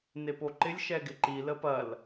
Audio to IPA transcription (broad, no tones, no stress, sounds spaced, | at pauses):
n e p o ǃ ɪ lʲ ʃ ɛ ɡ ɪ ǃ i l ə p ɐ l